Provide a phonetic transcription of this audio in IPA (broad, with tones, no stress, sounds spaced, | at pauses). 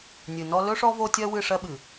nʲ ɨ˨ n ɔ˦ l ɵ˦ ʂ ɔ˦ v o˦ tʲ ɜ˦ w ɨ˦˨ ʂ ɜ˦ ɓ ɨ˨